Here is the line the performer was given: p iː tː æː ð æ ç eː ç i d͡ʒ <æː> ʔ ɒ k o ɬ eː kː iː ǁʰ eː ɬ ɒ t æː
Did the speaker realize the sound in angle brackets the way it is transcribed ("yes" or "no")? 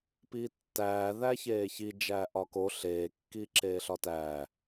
yes